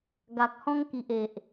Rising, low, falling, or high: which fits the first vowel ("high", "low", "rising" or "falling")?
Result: low